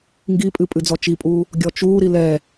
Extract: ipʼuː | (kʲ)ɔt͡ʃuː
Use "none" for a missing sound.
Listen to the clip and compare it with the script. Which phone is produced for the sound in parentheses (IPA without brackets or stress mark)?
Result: ɡʲ